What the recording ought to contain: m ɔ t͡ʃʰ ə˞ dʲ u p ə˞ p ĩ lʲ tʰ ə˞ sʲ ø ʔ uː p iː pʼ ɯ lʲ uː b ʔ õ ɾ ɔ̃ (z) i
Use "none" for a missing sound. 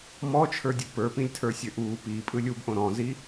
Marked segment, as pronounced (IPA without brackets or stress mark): z